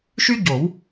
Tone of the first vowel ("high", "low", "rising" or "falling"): high